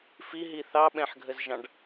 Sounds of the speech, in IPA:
fiɦi θɑɓɛ̃ħɡʱəzʒɑ̃ɖ

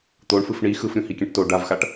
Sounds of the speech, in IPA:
t̪oɳfɯf ɳi xɯfɾʲũ hikʲɛ̃ʈto ɖavxaʈ

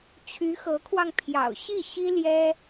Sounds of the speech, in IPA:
t͡ɕʰy˧˥xɤ˧˥kʰwɑ˧ŋ pʰjɑ̰˨˩ʊ̯ɕi˥˩ɕi˥ ljɛ˥

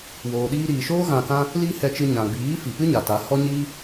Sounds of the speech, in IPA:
woː˨ɗiː˧ɾiː˨ʃoː˦ ɣã˧kã˦ | li˦hɛ˧t͡ʃɨ˧ ɲã˨ɡ͡biː˨˦ fi˨pɨ˦ɲa˨ ta˨˦ hɔ˦ɲiː˦

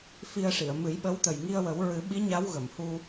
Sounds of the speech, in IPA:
fi˧ə̯ʂi˨˩˨ə̯ mɨ˨˩˦jɓə˧˥wt̪ə˨˩j ŋi˧ə̯wə˨˩˦w ɹɨ˨˩˦ɓi˧˥ ɲa˧˥wɣə˨˩˨mhu˧

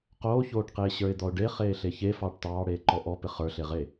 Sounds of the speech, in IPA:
qoːçoːʈqeː ɕə˞ɪ̯d̪ɔʊ̯ɖe χeːɬeçe fɑːʈtɑːɽeːǃɔ ʔɔpɪ χə˞ɬeʁe

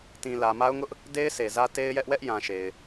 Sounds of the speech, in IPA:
tĩ˨lä˨ ma˦ʊ̯ŋʊ˦ʔ | de˦ɪ̯ sʰe˨zä˦ te˦ɪ̯jɛ˦ʔ wɛ˦ʔjã˨ ʃe˨ɪ̯

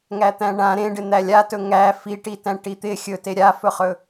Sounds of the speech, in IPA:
ŋæt̪æ̃ɳã ɾẽɖɪ n̪ælʲatɵ ŋæ fiʈi tæ̃ʈit̪ɪ xʲɵte ɾʲafɵχɵ

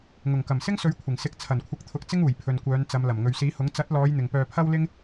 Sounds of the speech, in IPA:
ŋʊ˨˩ŋ kɐ˨˩msɪ˥ŋsɵ˨˥ɥ kʷʰɪ˨˩ŋsɪ˨˥k̚ t͡sʰɐ˨˩nkʷʰɪ˨˥k̚t̪ʰʊ˨˥k̚ t͡sɪ˥ŋ uː˨˩jpʰɵ˨n kʷœː˨˧nt͡sɐ˨˧mlɐ˨˩m ŋɵ˨ɥsiː˨˥hʊ˨˥ŋ t͡sɐ˨˥t̚lɔː˨˧j n̪ɪ˨ŋpœː˧pʰɐ˥wlɪ˥ŋ

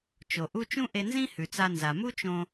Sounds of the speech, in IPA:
t͡ʃo˩ʔu˥ t͡ʃũ˥ʔe˧nzĩ˥ hʉ˩t͡sa˧ nza˩ mu˥t͡ʃõ˧

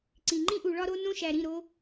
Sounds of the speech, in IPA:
ǀĩ˨ ŋ͡ǃĩ˦ʔu˨ɭɒ˦ɾo˦ nõ˦ʃæ˨ ɾĩ˦˨ɾo˦

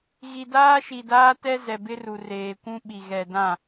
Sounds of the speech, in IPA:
ɣi˨daː˦ʃi˨daː˦ tɛ˦zɛ˨ bɪ˦ru˨reː˨ kʷũ˦ ɓi˨ɣɛ˨dã˦˨

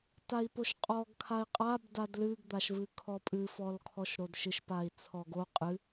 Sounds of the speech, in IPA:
tai̯poʃqʼɔɡ kʰai̯qʼab dadlɨɡ d̪aʃvɨkʰɔpʼɨ fɔlkʰɔʃɾodʃɨʃ pai̯t͡sʰɔɡo qʼɨ

